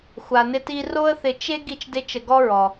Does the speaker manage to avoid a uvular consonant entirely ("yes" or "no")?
yes